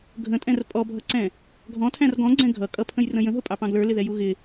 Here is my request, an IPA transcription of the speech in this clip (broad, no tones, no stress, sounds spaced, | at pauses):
ɡʱ ə̃ tʼ ɛ̃ r pʼ ɔ bʱ ʌ ǀ ɛ̃ | ɡʱ ɔ̃ tʰ æ̃ r ɡ ɔ̃ ɡ͡ǀ ɛ̃ ɡʱ ʌ kʼ ʌ pʰ ə̃ j r ə̃ j ə̃ ɦ ʊ pʼ ɑ p ɑ̃ ɡ l ə˞ l ɪ ð ɛ j u ɣ ɪ